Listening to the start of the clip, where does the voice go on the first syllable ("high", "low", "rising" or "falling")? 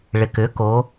low